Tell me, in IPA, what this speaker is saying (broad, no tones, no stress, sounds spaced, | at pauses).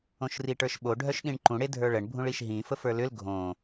õ ʃ r i ʈ ə˞ ʃ ɓ o ɖʱ œ ʃ ɗ ĩ ɳ ǃ ũ ɽ e dʱ ə˞ ɭ ə ɳ bʱ ũ ɭ i ʃ ɦ ĩ f ə f ə˞ l ʏ l ɡʱ õ